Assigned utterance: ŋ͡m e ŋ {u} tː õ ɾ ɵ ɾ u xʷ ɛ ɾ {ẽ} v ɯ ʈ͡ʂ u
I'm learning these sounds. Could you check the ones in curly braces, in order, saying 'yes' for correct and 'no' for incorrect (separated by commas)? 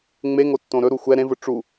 no, yes